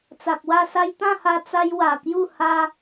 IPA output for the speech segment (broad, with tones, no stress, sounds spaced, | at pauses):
t͡s a˨ k̚ w a˥˧ s a˦ j t̪ ã˥˧ h a˧ t͡s a˦ j w a˨˩ k j u˥˧ h a˦